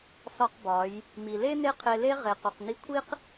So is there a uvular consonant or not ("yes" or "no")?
yes